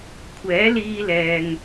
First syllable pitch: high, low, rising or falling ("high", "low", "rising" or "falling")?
rising